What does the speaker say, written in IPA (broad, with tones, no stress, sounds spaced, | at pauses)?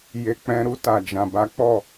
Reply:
j e˨ k͡p ɛ̃˨ ɾ u˧ t a˨ d͡ʒ ã˨ b a˨˦ k͡p ɔ˦˨